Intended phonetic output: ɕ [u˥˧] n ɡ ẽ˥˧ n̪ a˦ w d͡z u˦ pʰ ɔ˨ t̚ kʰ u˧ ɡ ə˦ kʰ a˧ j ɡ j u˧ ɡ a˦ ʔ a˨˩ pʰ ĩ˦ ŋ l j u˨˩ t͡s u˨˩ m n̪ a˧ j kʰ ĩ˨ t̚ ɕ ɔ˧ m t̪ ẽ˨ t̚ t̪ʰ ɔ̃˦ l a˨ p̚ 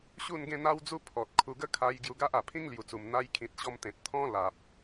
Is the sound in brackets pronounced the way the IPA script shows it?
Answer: yes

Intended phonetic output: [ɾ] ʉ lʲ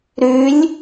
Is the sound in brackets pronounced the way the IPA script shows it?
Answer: yes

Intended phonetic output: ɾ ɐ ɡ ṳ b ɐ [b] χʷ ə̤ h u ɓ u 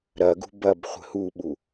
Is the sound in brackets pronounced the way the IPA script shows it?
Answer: yes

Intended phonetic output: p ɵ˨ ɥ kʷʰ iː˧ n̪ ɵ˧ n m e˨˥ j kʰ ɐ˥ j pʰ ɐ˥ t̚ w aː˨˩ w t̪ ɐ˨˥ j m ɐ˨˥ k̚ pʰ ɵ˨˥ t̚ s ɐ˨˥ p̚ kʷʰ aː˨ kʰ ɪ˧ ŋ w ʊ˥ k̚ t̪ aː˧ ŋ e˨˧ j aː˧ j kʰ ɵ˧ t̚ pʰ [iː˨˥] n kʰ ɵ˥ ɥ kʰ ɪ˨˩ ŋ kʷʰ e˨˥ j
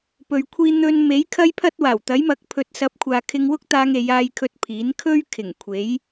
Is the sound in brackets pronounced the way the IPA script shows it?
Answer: yes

